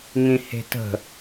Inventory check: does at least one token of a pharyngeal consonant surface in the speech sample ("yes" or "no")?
no